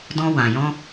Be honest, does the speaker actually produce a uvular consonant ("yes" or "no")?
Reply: no